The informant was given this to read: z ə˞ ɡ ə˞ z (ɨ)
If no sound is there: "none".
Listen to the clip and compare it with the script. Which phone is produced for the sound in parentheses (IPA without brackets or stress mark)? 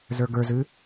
ɨ